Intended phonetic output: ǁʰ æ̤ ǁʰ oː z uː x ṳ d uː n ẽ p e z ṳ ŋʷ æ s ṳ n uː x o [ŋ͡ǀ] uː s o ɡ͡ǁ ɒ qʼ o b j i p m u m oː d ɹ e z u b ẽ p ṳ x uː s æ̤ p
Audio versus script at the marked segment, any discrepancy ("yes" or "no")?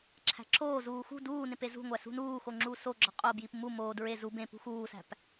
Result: yes